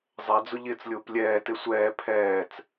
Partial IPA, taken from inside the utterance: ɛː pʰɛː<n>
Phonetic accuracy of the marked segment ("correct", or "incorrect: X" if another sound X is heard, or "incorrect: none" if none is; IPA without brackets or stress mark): incorrect: t͡s